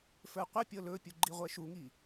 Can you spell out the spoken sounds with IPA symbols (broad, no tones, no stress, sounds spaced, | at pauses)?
f ə˞ qʷ a pʲ ɤ l ɵ pʲ u ɡ͡ǃ i ʁʷ ɛ ʃ u ŋ i